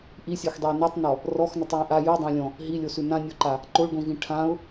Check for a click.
present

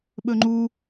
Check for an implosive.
present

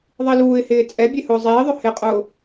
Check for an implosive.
absent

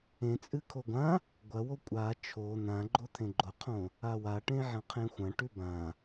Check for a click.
present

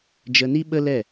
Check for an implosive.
present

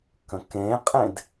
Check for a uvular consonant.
present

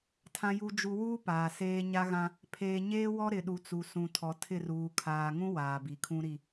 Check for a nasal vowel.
present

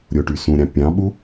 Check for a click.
absent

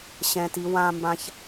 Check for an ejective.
absent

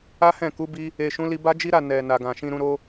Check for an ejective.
absent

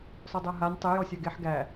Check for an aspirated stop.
absent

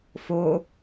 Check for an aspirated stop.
absent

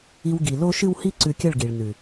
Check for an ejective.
absent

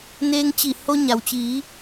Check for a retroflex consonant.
absent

